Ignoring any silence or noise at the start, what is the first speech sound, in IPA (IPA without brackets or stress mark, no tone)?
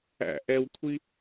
æ̰